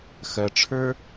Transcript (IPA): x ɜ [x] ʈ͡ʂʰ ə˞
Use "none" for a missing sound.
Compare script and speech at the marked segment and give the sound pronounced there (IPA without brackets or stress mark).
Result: none